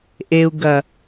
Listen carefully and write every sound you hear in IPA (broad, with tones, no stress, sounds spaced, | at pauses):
ʔ e˨ u̯ ɡ ɐ˨